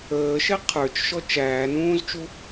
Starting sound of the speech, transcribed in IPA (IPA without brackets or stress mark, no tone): əː